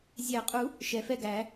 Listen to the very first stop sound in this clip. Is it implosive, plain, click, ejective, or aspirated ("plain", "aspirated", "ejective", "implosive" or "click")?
ejective